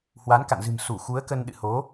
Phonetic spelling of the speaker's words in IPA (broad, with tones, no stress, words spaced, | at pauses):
hwa˨˦nka̰˧˨nzɨ̤˨˩m su˧˩xu˨˦ə̯kə˧n ɗɨ̰˧˨ho˨˦